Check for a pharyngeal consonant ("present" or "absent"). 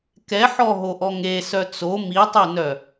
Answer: present